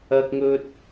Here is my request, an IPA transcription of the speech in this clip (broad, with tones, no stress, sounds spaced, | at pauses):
ɐ˥ k̚ ŋ ɵ˥ t̚